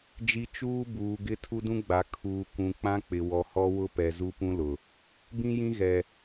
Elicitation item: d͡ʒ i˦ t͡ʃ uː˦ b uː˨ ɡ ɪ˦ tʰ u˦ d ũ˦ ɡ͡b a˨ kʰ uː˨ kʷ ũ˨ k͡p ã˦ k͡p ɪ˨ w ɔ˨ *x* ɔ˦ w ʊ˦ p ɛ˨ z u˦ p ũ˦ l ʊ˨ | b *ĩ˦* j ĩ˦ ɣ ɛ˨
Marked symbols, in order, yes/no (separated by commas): no, yes